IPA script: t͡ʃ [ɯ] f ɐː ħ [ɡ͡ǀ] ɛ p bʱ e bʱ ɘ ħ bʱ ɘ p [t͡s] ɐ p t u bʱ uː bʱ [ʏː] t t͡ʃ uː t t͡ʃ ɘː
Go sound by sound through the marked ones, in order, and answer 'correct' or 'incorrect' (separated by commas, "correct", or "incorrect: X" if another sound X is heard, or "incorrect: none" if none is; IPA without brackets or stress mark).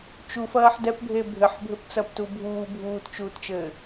incorrect: u, incorrect: d, correct, incorrect: uː